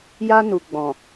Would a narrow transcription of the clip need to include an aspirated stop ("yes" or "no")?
no